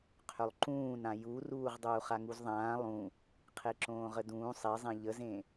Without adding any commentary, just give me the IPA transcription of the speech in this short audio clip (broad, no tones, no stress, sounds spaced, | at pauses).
qʰ ʏ lˠ ǃ ũː n ã j u r uː ʁ dˤ uː χ a ŋ u z ðˤ ãː lˠ ũ | qʰ e ǁ õː ʁ ə d ũː sˤ e zˤ ẽ ʎ ə z ẽ